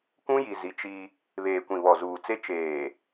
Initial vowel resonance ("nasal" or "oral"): nasal